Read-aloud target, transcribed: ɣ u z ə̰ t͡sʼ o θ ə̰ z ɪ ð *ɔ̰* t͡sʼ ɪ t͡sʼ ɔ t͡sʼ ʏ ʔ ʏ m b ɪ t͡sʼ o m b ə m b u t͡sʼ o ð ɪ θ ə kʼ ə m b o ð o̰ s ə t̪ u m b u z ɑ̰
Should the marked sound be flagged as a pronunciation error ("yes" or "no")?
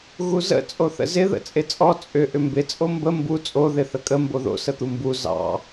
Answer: yes